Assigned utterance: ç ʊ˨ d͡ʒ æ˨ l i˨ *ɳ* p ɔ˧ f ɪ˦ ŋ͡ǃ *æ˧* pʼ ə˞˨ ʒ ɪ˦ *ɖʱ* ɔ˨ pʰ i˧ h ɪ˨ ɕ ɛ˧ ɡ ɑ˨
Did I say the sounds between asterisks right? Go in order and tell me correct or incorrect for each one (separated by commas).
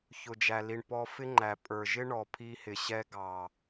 correct, incorrect, incorrect